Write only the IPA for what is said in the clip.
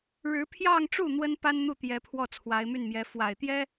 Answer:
ɻɻ̩˧˥pʰjɑ˥˧ŋʈ͡ʂu˥˩ n̪wə˥npa˥nn̪u˥˩t̪jɛ˧˥ pʰwɔ˥˩t͡sʰwa˧˥ɪ̯my˥˩nmjɛ˧˥ fwa˨˩ɪ̯t̪jɛ˥

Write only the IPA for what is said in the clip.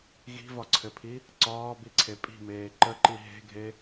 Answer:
ɣi̤vɒǀʰɘpʰi | ǀɒːbiǀʰe pʼi̤meː ǃəǃi ɦe̤ɡʱe

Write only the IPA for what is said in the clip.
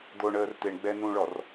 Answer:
d̪oɳəːr t̪eɳɡ͡bɛ nũɭɔr

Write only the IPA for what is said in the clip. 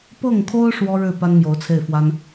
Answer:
pɤ˥˩ŋkʰo˥ʊ̯ ʂwɔ˥ɻɻ̩˥˩ pa˥nmjo˧˥ʊ̯t͡sʰe˥˩ɪ̯fwa˥n

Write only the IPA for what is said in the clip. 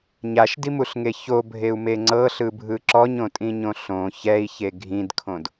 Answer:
ɲaʃdimuɬŋe çobʱeu̯me ŋ͡ǀɤɬɯbʱɯ ǁɔɲõtʼĩɲõ ɬõ çɛi̯çe ɡʱĩdkʰõd

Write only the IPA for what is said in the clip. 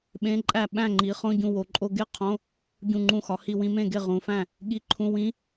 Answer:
ɓẽ˧˥˧ǃʼæ˥˩ ɓæ̃˥˩ŋ͡ǃi˩˧ χõ˧˥˧ɟũ˧˩wo˩˧ǃʼo˧ ɡe˥˩ qʰõ˧˥˧ | ɟũ˧˩ŋ͡ǃũ˧˩xɒ˩˧hi˧˩ wĩ˧mẽ˥˩ɡe˥˩ ʁũ˩˧fæ̃˥˩ | ɠi˧˥˧ǃʰũ˧˥˧ wĩ˦˥

